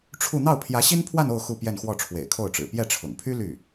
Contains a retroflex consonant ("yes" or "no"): yes